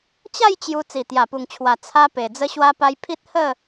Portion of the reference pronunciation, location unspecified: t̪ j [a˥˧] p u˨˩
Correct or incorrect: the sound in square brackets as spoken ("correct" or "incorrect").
incorrect